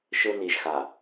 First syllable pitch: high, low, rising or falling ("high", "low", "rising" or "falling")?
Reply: high